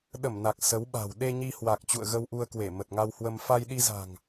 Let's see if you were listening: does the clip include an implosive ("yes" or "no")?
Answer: yes